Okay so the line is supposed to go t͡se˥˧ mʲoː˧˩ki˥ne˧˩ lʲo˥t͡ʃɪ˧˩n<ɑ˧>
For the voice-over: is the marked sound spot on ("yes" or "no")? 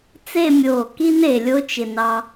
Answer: yes